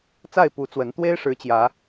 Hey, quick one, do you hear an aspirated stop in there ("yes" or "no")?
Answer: no